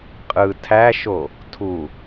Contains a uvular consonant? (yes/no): yes